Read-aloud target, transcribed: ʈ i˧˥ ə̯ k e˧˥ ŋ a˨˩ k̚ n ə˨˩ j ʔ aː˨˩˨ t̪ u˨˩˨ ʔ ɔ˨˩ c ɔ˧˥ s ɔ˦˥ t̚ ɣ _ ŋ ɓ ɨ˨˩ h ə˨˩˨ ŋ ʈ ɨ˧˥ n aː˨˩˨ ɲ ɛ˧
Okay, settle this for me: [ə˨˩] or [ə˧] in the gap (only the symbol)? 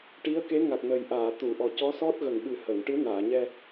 ə˨˩